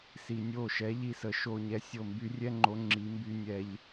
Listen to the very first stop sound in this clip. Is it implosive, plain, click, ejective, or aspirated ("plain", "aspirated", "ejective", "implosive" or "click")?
plain